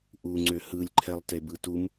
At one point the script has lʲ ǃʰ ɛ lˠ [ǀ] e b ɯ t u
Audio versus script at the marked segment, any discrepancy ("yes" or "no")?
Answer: yes